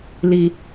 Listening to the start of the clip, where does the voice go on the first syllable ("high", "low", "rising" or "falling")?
low